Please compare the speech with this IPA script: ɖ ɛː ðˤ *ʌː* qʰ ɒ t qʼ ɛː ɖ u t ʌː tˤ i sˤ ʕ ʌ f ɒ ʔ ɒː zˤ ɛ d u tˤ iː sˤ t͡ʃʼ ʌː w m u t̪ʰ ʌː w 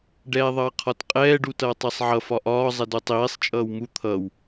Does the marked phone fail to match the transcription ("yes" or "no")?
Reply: no